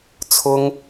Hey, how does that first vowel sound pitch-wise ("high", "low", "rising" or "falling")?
high